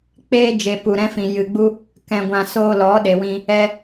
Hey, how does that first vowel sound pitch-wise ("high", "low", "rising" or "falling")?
high